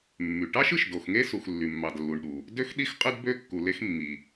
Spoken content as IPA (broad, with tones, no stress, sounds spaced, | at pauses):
mː y˩ ʈ ɑ˥ ʃ ɯ˩ ʃ d o˩ x ŋ e˥ s u˩ x lː y˩ mː ɑ˩ d lː u˩ ɳ ɗ u˩ | d ø˥ x ɗ i˥ x qʼ ɯ˥ d b ø˥ kː u˩ l e˥ x mː i˩